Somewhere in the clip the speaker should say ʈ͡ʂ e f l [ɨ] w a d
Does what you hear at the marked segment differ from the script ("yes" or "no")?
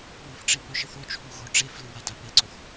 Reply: no